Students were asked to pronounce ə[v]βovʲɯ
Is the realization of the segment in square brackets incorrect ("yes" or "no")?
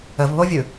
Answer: no